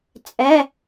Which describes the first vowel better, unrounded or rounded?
unrounded